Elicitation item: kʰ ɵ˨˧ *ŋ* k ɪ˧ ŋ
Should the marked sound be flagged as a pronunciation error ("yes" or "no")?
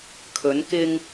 yes